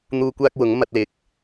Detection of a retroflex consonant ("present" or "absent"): absent